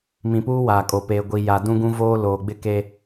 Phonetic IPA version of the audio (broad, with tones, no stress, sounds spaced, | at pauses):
m ĩ˨ p uː˦ w aː˨ kʼ o˨ p eː˨ ɡʷ i˨ j a˨ d ũ˦ ɡ ũ˦ v oː˦ l oː˨ ɡ͡b ɪ˦ k e˦